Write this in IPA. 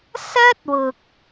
s ɐ˥ t̚ w ʊ˨ k̚

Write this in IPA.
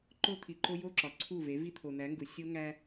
ǃ o˦ t̪ʰ i˨ ǃ o˦ j o˦ ǁ ɒ˨ ǀʰ u˦˨ v e˨˦ v i˦ t̪ʰ o˨ n̪ æ˨˦ ŋ ɡ u˨ sʲ o˦ ŋ æ˦

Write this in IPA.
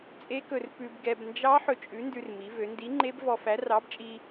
t͡sʼ e˦˥ k ɵ˧ r p ʉ˧ b ɡ ɛ˧ b n d͡ʒ ɑ˦˥ ħ ɵ˧ t͡ʃʼ ʉ˨˥ n d ʉ˧ r m i˩˧ v ø˩˧ n d i˨˥ ŋ͡ǃ e˦˥ b v ɔ˧ f æ˨˥ r ɑ˨˥ b t͡ʃʼ i˧

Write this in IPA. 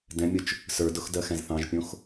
d ɛ̃ mʲ ʊ t͡ʃ | s ə˞ d ʊ x d ɜ x ɛ̃ z θ ɑ̃ ʒ pʲ õ x

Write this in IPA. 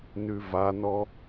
n ʉ v a n ɔ

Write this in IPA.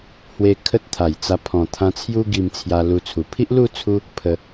h w e˧ kʰ ə˦ t̚ t̪ʰ a˨˩ j t͡s a˧ pʰ ɔ̃˨˩ t̪ʰ ã˧ t͡sʰ j u˦ ɡ i˧ m t͡sʰ j a˧ l u˧ t͡sʰ u˨˩ pʰ i˦ ʔ l u˥˧ t͡sʰ u˧ | pʰ ə˧

